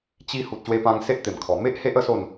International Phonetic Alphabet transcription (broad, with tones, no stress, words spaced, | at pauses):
t͡ɕi˧ hu˨t̚ɕwe˧pã˧ŋ se˦ʔt̪e˨˩mkʰɔ˨˩ me˦ʔ he˦ʔə˥˧ so˥˧n